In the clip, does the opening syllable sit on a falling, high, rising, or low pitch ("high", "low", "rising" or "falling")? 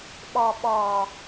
low